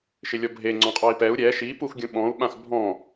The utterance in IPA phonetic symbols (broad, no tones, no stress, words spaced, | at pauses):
ʃɪlʲɔbʱe ŋ͡ǀɔ̃qʼɔi̯pɛu̯ ɾʲɛ ʃi puxɡʲũɓɔ̃u̯ ɓãxbʱɔ̃